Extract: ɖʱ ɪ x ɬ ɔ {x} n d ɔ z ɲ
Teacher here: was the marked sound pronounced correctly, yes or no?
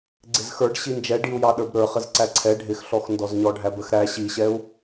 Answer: yes